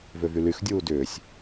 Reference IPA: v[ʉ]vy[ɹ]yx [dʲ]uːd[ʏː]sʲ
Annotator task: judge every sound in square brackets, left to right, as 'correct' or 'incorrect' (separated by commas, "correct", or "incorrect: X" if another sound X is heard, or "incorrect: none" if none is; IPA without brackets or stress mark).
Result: incorrect: ø, incorrect: l, correct, correct